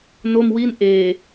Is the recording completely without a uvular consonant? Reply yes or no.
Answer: yes